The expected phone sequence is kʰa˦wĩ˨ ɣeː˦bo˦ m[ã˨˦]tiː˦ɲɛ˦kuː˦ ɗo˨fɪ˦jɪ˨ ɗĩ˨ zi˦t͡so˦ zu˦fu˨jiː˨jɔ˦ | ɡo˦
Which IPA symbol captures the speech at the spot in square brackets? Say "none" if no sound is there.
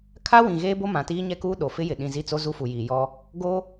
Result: ã˨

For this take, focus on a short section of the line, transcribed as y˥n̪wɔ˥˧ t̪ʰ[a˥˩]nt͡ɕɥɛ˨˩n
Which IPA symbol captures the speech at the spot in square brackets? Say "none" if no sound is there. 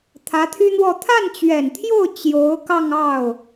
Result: a˥˩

